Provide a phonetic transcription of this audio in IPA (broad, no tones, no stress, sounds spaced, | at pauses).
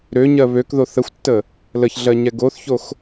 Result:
ɾ ø ɲ ɜ β ø k ð o θ ə xʷ tː ə | l ə ç ɮ ɜ ɲ ɛ ɡ o θ ç o x